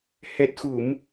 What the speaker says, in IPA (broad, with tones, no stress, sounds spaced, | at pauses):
h ɛ˨˩ t̚ x u˨˩˨ m